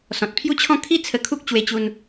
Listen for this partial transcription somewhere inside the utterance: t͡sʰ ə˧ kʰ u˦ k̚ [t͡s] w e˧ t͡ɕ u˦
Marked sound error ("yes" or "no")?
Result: yes